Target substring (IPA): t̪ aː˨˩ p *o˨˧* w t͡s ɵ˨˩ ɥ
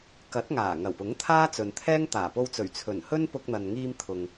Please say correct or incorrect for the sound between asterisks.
incorrect